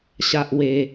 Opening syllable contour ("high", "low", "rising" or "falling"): high